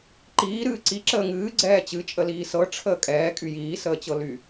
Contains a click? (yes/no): yes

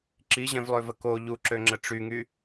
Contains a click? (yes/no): yes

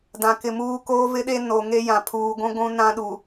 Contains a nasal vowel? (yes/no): yes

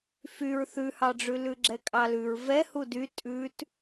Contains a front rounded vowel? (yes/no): yes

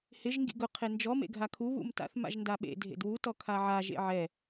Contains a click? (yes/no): no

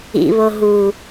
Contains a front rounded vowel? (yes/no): no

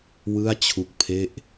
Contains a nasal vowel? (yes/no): no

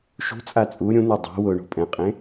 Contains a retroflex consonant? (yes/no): yes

